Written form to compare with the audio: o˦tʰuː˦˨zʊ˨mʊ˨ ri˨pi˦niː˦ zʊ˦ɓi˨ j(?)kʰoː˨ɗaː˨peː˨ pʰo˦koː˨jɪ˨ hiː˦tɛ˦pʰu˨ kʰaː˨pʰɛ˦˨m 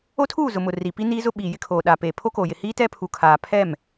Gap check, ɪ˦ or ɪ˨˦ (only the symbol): ɪ˦